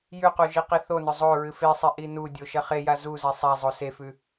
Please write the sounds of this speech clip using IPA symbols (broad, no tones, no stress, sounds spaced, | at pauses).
j ʉ q u ʒ i q i θ o n ɵ zˤ o ɹ ɨ f e sˤ e ʔ i n u dʲ o ʃ ɐ χ e j a z u z e sˤ a zˤ o s e f ʉ